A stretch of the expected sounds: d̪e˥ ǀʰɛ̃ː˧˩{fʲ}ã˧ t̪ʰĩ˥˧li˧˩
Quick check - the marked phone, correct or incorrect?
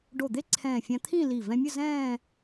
correct